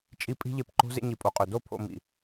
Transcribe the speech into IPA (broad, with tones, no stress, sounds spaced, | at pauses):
t͡ʃʼ i˦ pʼ i̤˦ ʎ e˧ p ǃ o̤˦ z ḛ˧ ɲ i˨ pʼ o˨ qʼ ø˨ d o˦˨ pʰ o̰˧ m ḭ˨